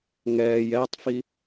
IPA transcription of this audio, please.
ŋɛːj ɛtˤfi

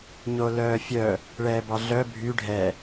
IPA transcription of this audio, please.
ɲolœːfʲœ | ɭɛːbɑɮœ bʱy ɖʱɛ

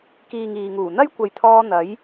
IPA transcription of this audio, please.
kiː˨ŋ iː˨ŋuː˨˩ n̪ɐ˥jkʷɐ˨jt̪ʰɔː˧ n̪ɐ˨˥j

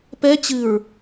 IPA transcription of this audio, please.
pɛ t͡ɕɨɹ

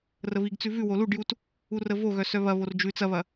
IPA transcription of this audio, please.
rəβiɡt͡sʉ vʉ woluɖjut | urəvoɣœ sœβɐβor d͡ʒʉ t͡sɐβɐ

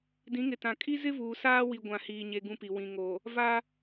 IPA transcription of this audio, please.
dĩ˨˦ŋɪ˨tã˨ kʼi˦zɪ˦vuː˨saː˦ wi˦ɡʷã˦˨hiː˦ɲe˦ ɡũ˦pi˨ wĩ˨ŋo˨ | va˦

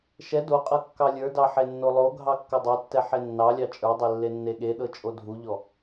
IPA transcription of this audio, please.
ʃɛ doqʼɤ kːɑlʲə˞dɑ ħenːolˠoɡʱɑ kːɤdˤetːɛ ħenːɑlʲɑ t͡ʃʼə˞dˤe lːenːeɠeɗɤ t͡ʃʼodʱuʎɔ

